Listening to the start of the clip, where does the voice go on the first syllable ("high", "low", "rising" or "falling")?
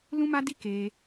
high